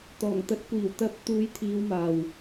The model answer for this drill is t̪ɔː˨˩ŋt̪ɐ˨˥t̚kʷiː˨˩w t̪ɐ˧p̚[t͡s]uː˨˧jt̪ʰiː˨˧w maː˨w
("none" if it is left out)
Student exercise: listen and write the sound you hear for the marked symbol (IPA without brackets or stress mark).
t̪